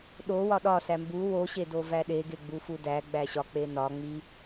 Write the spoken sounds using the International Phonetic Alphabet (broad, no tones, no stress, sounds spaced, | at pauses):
ɗ o w ɒ ɗ ɒ s æ m b u w o ɕ e d o v æ ɗ e ɡ e ɡ͡b u f u d æ ɡ͡b æ ɕ ɒ k͡p e n ɒ ŋ͡m i